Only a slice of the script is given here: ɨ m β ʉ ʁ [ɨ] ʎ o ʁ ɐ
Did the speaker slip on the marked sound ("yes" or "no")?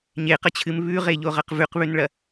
yes